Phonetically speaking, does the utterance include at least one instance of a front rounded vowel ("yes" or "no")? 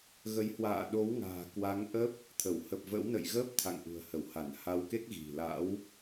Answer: no